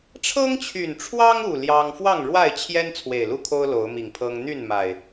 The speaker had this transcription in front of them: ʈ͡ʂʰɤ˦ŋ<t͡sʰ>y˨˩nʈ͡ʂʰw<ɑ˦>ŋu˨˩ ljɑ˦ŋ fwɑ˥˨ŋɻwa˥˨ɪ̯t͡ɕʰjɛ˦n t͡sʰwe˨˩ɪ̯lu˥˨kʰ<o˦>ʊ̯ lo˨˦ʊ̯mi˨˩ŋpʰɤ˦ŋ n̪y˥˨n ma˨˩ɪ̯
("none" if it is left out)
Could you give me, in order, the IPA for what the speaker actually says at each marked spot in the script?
t͡ɕʰ, ɑ˦, o˦

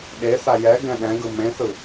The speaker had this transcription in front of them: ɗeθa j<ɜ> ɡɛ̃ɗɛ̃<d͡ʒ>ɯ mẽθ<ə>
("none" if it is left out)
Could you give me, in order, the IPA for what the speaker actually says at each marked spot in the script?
ɛ, ɡ, ɯ

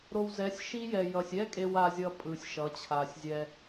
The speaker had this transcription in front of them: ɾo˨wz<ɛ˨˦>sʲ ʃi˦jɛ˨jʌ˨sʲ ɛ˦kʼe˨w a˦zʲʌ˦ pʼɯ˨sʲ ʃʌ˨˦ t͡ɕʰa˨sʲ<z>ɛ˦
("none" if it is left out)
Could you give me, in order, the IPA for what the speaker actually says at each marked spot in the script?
ɛ˨˦, zʲ

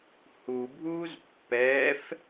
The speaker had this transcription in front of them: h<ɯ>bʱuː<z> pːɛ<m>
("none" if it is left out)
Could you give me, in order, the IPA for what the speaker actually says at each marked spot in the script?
u, z, f

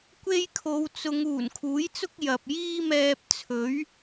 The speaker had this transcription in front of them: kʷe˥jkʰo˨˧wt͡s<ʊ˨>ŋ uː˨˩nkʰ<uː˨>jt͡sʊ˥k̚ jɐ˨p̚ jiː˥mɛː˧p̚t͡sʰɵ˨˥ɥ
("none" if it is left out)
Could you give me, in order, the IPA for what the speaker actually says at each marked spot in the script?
ʊ˨˧, uː˨˥

